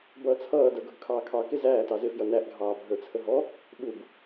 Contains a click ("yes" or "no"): no